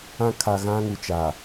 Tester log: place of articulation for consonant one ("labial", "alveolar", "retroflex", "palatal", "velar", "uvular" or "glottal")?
velar